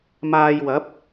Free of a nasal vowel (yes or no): yes